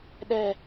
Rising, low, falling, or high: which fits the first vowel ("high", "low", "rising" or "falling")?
high